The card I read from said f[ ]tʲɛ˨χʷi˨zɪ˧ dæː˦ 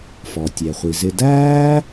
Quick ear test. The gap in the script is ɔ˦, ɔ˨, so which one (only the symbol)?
ɔ˨